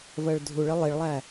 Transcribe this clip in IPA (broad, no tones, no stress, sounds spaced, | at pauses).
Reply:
v ɜ ɭ dʱ u ɭ ɪ lˠ i ɭ lˠ æ